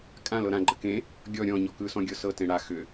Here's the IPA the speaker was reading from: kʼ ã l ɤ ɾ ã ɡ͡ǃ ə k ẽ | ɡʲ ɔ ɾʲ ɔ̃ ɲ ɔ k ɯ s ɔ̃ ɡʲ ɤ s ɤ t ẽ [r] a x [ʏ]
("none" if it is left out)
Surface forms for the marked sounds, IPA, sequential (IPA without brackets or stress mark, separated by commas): ɽ, ʏ